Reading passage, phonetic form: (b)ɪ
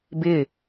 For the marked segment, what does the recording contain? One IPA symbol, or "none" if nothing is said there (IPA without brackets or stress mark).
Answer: b